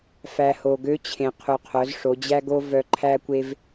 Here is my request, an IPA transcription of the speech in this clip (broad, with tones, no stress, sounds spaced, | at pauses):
f æ˩ h o˩ ɡ ø˧˥ t͡ɕʰ ẽ˩ qʰ u˩ qʰ œ˩˧ z ʂ o˩˧ d͡ʑ æ˥ ɡ o˥ v œ˧ ǃʰ æ˥ kʷ e˥ v